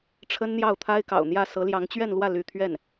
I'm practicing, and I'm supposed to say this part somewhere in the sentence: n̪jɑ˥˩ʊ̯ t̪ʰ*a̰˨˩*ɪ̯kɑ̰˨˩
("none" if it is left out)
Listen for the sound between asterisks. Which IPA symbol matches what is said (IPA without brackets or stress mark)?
a˥